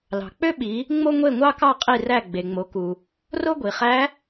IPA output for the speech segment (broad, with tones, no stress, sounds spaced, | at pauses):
l ɑ̤˩ k͡p ø˥ ɓ i˩˧ | ŋ͡m o˥ ŋʷ e˥˨ ŋʷ ɑ˥ k ɑ˥˨ qʼ i˥˨ r æ˥˨ ɡ͡b e˩ ŋ͡m o˩˧ k u˩ | r o˥ ɡʷ i˩ χ æ˧˥